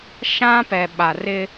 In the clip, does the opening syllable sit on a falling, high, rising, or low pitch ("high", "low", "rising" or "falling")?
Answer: high